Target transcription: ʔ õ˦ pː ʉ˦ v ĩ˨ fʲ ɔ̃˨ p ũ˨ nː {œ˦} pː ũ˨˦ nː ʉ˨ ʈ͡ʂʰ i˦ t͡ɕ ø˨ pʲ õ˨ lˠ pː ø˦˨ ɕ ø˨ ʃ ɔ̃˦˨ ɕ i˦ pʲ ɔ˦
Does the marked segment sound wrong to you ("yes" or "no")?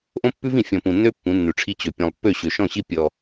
yes